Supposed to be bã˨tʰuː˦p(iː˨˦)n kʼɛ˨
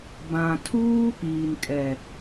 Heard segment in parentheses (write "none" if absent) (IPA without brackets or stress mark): iː˨